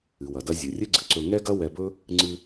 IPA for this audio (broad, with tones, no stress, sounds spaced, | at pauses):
ɨ˩ w ɐ˩ d ɐ˧ zʲ ɨ˩ rʲ ɨ˥ ɡ͡ǀ ɨ˩ ǀ ɵ˧ ŋ ɛ˥ ɡ ɐ˥ w ɛ˧ b ɵ˥ | ŋ͡ǀ ɨ˧